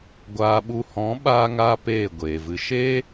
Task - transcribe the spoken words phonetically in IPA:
ɡʷ aː˧ ɓ u˧ h ɔ̃˨˦ ɓ aː˧ ŋ aː˧ p eː˦˨ ɡʷ eː˨ v ɨ˧ ʃ eː˦

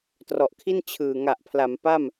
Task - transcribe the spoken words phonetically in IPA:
t r ɔ˨˩ ʔ kʰ i˥˩ n t͡ɕʰ ɯː˨˩ ŋ a˨˩ ʔ pʰ l a˩˦ m p a˥˩ m

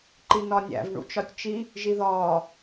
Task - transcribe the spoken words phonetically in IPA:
ǃ i n ɒ nʲ æ̰ v ɳ ṵ t͡ʃ ɒ tʲ t͡ʃ i | ʒ i ð ɒː

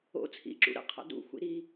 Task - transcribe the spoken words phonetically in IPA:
o̰ t͡sʰ ḭ ǁ ṵ ɾ ə̰ qʰ a̰ d ṵ xʷ ḭ ɾ i

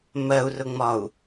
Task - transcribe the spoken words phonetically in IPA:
m ɜ u̯ r ʊ ŋ͡m ɒ u̯

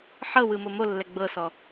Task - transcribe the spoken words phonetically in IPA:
ħ ɤ w ɯ m o m o lː ɛ ɡ͡b ɤ s ɔ

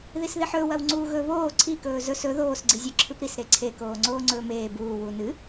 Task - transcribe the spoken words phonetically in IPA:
ð i s ð i ħ ɵː w ɐ w ŋ͡ǀ uː ɣ ɵ β oː ǀʰ i k ɵː z ɵ s ɵ ð oː s ɡ͡ǀ i zʲ ɵ ǁʰ ɨ p ɾ i s ɾ e ǀʰ e k oː ŋ͡ǀ oː ŋ͡ǀ ɵː m eː b uː w u n ɨ

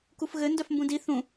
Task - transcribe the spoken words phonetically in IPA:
k u f ɣ ɘ n d œ f m b ũ d i θ ũ

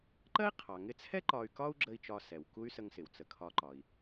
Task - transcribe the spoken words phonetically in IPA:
ǃ ɜ˥ i̯ qʰ ɑ˩ ŋ ɪ˧ t͡sʰ ɛ˥ ǃ ɒ˧ y̯ k ɒ˥ u̯ ɡ͡ǁ ə˧ i̯ t͡ʃ ɒ˧ s ɛ˩ w k u˥ y̯ s ə˧ ŋ s ɪ˩ w t͡s ə˩ kʰ ɒ˧ ǃ ɒ˩ i̯

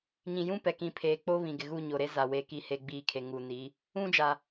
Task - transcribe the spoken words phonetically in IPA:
ɲ ĩ˨ j ũ˦ p ɛ˨ k ĩ˨ pʰ eː˨ k͡p o˦ β ĩ˨ ɡ ɪ˨ ɣ u˦˨ ɲ o˨ ɾ e˦ z a˨ w e˨ k i˨ h e˨ ɡ͡b iː˨ kʰ e˨ ŋ u˨ n i˨˦ | ũ˦ d͡ʒ a˨

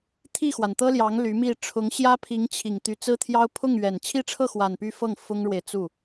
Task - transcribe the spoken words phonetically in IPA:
t̪ʰ i˥˩ x w a˩ n t̪ ɤ˥ l j ɑ˧˥ ŋ l y˧˥ m i˥˩ ʈ͡ʂʰ ʊ˧˥ ŋ ɕ j ä˥ pʰ i˧˥ ŋ t͡ɕʰ i˨˩ ŋ t̪ y˧˥ t͡s ɹ̩˥ t̪ʰ j ɑ˥ ʊ̯ pʰ ʊ˥˩ ŋ ɥ ɛ˨˩ n t͡ɕʰ i˥˧ ʈ͡ʂʰ ɤ˥˩ x w a˨˩ n p y˥˧ f ɤ˥˩ ŋ f ʊ˥ ŋ ɻ w e˨ ɪ̯ t͡s u˥˩

